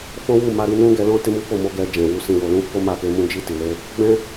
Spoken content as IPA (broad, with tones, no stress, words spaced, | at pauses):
fɔ̃˦wu˦˨ma˧ɾi˧ nũ˦ɡɛ˧lɔ̃˦ te˦mu˦fo˦˨mo˧ ɡɛ˧ d͡ʒɛ̃˨wu˧ sĩ˨wo˨lũ˨˦ fo˦ma˦˨ke˧mũ˦ d͡ʒi˦˨ti˨le˧ | ɡ͡bɛ̃˧